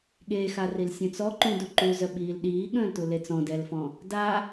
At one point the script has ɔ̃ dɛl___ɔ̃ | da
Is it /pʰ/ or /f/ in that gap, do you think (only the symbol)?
f